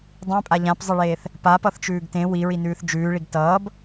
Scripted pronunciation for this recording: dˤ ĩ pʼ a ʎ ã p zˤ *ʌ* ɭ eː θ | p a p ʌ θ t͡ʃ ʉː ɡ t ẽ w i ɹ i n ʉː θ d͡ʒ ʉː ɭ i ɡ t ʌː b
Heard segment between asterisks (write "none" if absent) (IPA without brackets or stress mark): ʌ